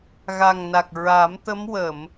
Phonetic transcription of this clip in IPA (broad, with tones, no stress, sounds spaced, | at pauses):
ɣ a˨˩ ŋ n a˨˩ k̚ ɹ a˨˩˦ m t̪ ə˧˥ m w ə˨˩˨ m